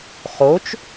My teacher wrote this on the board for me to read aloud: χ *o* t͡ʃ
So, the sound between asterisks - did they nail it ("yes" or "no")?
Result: yes